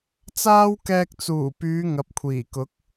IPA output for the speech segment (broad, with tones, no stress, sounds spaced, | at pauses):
t͡s aː˥ w k ɛː˧ k̚ t͡s uː˨˩ p yː˨˧ ŋ ɐ˨˥ p̚ kʷʰ iː˨˩ k ʊ˨˥ k̚